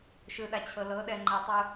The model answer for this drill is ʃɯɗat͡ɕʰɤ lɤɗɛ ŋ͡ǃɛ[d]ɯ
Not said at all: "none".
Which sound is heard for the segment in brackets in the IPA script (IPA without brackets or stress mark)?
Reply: tˤ